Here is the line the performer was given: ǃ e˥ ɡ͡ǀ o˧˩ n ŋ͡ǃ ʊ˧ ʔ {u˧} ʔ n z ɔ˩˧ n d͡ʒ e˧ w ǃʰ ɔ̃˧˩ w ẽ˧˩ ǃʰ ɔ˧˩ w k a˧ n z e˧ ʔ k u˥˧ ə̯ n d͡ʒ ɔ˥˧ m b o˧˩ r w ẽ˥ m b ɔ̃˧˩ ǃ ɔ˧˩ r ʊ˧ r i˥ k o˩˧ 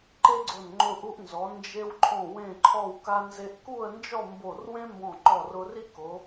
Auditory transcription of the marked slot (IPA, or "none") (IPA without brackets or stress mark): u˧